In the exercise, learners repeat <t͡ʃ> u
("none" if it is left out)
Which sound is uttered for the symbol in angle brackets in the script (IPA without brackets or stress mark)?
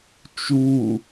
t͡ʃ